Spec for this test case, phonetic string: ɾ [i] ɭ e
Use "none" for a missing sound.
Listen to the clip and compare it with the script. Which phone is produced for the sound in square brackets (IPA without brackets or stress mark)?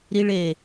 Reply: i